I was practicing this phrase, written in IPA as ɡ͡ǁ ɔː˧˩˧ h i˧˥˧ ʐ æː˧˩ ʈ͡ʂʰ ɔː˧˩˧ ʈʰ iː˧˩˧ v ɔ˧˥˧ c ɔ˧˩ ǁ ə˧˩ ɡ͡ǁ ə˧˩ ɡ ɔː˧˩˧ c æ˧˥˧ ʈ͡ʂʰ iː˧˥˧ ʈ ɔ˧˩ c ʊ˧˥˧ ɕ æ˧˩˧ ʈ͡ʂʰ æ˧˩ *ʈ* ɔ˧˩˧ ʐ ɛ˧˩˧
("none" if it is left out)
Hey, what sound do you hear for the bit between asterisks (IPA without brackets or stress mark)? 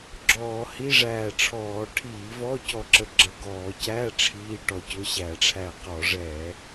q